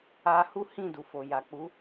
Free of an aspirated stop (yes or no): yes